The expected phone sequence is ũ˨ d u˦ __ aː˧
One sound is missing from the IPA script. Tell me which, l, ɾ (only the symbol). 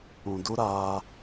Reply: ɾ